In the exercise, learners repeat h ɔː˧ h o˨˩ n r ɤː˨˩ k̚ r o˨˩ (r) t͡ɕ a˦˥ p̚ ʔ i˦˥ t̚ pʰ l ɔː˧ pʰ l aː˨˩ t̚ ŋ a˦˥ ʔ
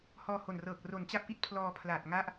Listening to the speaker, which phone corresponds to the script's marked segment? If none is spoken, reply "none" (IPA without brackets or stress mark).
n